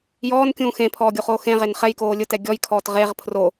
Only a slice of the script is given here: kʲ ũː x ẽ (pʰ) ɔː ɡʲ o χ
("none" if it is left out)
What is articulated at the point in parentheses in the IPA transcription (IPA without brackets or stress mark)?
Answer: pʰ